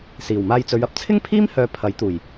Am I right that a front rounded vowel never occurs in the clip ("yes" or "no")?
no